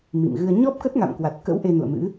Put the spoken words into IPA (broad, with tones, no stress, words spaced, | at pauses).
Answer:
mḭ˧˨mɣɨ˧ə̯ ɲɔ˦˥p̚kə˦˥t̚ŋa̰˧˨m kwa˨˩t̚kə̰˧˥w ʔe˧nṵ˧˨ə̯mɨ̰˧˥